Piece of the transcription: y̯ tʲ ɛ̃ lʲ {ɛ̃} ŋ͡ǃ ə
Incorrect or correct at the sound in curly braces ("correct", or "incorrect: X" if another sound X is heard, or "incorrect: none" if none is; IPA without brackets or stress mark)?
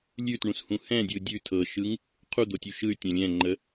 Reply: correct